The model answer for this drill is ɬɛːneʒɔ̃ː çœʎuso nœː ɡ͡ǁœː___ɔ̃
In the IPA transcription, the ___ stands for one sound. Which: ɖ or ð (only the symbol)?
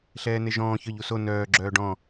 ɖ